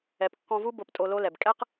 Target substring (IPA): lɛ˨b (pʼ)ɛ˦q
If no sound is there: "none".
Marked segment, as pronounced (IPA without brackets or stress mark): kʼ